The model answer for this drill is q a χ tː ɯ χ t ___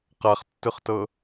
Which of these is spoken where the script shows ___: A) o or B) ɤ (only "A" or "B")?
B